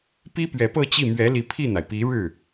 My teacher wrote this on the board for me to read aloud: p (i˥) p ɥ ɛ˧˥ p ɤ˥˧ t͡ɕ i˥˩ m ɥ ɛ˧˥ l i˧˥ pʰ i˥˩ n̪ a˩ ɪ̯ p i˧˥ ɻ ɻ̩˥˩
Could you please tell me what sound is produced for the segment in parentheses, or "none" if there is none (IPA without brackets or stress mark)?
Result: i˥